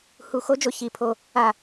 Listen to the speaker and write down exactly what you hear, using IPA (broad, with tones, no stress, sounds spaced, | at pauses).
h u˧˩ x o˦˥ d͡ʒ o˧˩ ç i˧˩ pʰ o˧˩ | a˧˩